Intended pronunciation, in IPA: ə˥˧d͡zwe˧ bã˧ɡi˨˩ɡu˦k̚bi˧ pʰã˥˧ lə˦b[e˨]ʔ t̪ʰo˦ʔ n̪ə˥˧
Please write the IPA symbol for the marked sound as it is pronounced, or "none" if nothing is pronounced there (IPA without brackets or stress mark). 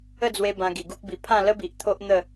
i˨